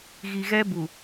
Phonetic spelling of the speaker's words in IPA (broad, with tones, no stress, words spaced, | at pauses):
ɣi˨ɣɛ˦ bu˨